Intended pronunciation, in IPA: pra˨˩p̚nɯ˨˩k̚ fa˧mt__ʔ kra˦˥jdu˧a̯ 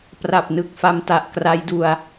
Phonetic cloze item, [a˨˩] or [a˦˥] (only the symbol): a˨˩